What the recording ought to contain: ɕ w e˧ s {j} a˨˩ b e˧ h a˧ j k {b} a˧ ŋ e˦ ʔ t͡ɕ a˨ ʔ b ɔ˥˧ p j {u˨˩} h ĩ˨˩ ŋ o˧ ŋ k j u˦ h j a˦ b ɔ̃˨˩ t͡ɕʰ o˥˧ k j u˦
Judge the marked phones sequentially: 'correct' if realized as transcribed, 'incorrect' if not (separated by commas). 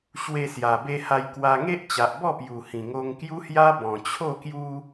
correct, incorrect, correct